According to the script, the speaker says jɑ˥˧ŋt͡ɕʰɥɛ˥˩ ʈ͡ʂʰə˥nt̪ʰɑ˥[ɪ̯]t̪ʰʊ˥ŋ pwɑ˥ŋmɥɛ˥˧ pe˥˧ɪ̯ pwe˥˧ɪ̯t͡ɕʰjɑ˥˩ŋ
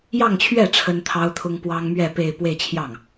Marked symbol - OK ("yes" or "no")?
no